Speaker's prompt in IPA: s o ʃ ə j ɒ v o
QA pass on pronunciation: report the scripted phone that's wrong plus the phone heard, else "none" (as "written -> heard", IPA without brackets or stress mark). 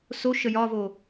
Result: none